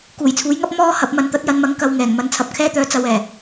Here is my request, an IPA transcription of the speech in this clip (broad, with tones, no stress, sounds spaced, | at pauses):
k uː˨˩ j t͡sʰ uː˨˥ j ŋ ɐ˥ p̚ m ɔː˥ h ɐ˨˥ p̚ m ɐ˨ n t̪ ɐ˨˥ t̚ j ɐ˨˧ n m ɐ˨˥ ŋ k ɐ˧ w ŋ ɛː˨˩ ŋ m ɐ˨˥ n t͡sʰ ɐ˨ p̚ kʰ ɛː˥ t̪ œː˧ t͡s ɐ˨˧ w ɛː˨˩